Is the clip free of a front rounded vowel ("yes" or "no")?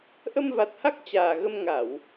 yes